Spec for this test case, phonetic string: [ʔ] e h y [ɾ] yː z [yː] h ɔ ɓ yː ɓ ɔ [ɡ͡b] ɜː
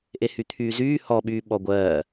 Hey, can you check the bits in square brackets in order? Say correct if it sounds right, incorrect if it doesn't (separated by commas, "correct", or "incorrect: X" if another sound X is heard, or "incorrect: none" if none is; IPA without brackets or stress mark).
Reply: correct, incorrect: t̪ʰ, correct, incorrect: ɡʷ